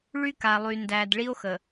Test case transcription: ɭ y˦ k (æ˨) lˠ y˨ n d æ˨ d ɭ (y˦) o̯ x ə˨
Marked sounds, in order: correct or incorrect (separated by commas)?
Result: incorrect, incorrect